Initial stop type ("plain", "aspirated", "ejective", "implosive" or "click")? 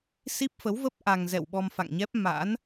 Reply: plain